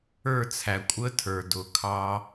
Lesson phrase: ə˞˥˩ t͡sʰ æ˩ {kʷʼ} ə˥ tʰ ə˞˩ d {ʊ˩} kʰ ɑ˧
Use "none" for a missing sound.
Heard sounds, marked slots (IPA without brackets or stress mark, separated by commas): kʷʼ, ʊ˩